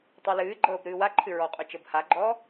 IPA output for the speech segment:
tˤɤlɨːɡ͡ǃɤːb ɾɨːwaǃʰɨ ɹɔqʼo t͡ʃɤbhaɡ͡ǃɔː

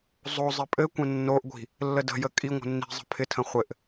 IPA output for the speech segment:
zˤo zˤɪpʼɘkʷə̃ nːoʔɡʷi̤ | lːədə̤jə kʼi ŋʷə̤nːi̤zˤə̤ pʰɪtʰə̃ χʷɘʔ

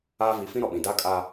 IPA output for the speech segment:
aː˦ vi˨˦fĩ˦ ɾɔ˨ɓĩ˨ daː˦kʼa˦

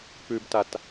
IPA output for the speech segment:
pʉbtat

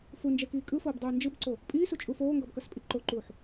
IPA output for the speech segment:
fund͡ʒɛkiː kʼɯfoːbdˤuː nd͡ʒɯbǀo | pʼiːsut͡ʃʼuːf oːŋɡʌbkʌspʼi ǃoǃuːħ

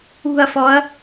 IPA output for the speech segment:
ṳɐ̯fɔɐ̯

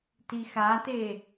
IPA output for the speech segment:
tixate

